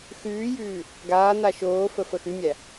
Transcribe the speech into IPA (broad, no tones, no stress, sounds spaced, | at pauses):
x ʉː j ʉː | ɡ aː n̪ a ʃ oː f ə f ə x ʉ mʲ æ